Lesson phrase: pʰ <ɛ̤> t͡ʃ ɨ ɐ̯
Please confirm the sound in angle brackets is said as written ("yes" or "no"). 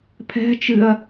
yes